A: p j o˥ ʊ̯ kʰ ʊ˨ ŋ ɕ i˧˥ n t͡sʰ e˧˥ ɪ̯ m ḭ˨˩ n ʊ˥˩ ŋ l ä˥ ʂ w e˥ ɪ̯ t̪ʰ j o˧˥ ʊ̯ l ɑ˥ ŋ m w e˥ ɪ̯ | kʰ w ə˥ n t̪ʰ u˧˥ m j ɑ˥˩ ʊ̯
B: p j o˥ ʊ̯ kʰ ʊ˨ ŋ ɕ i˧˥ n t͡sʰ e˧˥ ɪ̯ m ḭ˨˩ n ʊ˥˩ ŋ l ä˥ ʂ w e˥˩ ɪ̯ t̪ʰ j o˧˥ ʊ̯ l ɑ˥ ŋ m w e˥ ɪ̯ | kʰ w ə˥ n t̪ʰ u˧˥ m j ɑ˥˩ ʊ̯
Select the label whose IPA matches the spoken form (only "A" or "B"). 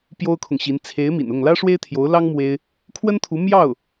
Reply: A